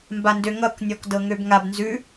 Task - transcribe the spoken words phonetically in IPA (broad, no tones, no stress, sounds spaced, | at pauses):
m b a n d ø ŋ ʌ k nʲ ɔ k d ɤ ŋ ø b ŋ a b n z ʉ